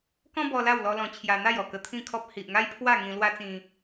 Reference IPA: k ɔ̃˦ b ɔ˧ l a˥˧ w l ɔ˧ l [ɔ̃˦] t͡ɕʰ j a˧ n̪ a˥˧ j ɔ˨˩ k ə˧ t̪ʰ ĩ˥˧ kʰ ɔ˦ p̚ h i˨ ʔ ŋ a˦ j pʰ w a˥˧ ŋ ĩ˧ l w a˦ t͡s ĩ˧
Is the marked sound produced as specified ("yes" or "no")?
no